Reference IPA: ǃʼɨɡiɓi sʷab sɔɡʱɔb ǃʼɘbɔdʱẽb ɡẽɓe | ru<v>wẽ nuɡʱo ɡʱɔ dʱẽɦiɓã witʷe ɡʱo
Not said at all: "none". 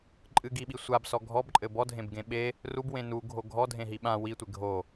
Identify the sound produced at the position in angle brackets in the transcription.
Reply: b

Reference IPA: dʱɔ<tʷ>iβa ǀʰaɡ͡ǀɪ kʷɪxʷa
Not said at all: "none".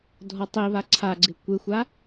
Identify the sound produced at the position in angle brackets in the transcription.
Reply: tˤ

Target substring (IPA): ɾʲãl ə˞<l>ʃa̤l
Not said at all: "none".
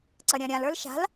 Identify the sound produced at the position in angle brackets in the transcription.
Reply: l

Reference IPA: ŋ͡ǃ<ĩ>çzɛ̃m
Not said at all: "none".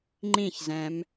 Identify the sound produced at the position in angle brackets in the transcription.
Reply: ĩ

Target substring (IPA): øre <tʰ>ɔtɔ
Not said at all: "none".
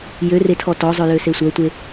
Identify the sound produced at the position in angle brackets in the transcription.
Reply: tʰ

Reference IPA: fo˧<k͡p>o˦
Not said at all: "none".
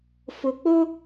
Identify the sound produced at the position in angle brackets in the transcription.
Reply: k͡p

